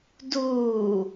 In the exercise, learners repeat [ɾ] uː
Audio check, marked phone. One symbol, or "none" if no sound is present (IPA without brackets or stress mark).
d